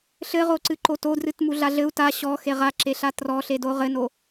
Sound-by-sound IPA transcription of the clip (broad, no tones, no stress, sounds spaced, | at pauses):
ɬ ɘ ʁ o ǀ ɨ ǃ o t o d r ɨ t m u ɮ a ɮ ɘ u̯ t a ɕ ɔ x e ʁ a ǁ e ɬ a t r ɔ ɬ e d o ʁ ɘ n o